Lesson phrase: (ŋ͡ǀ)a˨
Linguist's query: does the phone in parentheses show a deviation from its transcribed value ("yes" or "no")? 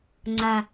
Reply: no